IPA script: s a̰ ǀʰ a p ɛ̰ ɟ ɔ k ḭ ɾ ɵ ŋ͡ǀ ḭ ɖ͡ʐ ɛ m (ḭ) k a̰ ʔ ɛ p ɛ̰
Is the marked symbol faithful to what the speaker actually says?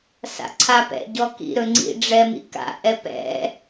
yes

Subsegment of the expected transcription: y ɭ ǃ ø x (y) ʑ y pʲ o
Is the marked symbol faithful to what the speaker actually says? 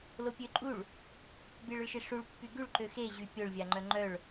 no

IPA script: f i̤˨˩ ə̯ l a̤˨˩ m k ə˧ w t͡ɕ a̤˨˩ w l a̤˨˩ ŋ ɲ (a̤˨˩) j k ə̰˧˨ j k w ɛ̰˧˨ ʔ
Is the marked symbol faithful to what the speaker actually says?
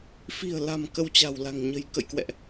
no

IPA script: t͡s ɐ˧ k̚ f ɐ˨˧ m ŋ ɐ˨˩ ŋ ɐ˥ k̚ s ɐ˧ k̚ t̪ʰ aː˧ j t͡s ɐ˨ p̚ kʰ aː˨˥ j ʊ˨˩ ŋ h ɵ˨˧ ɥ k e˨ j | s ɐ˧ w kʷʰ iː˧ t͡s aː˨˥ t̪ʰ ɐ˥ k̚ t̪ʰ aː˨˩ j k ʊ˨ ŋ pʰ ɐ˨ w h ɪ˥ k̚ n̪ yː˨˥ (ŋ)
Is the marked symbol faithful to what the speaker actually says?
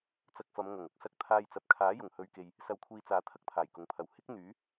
no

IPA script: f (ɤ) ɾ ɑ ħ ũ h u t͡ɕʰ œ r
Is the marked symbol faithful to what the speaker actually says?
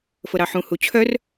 yes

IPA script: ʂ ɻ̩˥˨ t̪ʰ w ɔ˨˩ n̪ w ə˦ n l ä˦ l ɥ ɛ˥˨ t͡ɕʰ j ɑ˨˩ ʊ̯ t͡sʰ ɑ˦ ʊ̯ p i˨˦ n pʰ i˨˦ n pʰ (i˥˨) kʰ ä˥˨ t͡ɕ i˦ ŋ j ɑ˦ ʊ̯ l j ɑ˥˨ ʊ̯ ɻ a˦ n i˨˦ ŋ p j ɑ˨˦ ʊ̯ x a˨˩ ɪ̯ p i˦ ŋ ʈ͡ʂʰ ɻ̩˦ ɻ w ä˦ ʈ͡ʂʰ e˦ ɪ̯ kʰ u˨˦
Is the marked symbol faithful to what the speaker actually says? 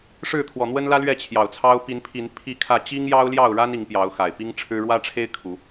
yes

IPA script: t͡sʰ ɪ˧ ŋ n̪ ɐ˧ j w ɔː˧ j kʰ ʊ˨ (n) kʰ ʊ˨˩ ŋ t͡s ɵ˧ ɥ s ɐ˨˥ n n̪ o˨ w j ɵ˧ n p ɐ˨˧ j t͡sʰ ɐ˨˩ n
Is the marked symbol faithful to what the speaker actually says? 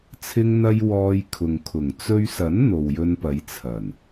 no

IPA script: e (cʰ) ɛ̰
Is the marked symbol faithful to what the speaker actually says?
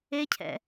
yes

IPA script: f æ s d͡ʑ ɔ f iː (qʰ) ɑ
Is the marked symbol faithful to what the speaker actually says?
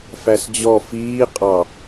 no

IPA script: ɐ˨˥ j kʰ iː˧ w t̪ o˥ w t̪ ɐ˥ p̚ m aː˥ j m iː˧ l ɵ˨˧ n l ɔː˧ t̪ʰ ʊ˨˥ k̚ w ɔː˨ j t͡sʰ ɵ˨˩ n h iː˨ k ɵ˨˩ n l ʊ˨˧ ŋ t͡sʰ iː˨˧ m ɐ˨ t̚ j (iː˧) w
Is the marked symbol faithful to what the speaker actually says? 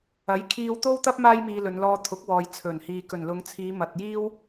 no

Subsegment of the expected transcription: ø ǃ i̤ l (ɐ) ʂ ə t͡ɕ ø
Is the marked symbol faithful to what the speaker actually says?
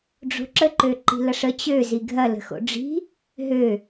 yes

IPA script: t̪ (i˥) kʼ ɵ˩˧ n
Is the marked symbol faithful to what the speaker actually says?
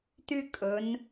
no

